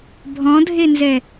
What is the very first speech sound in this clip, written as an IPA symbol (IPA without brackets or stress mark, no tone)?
bʱ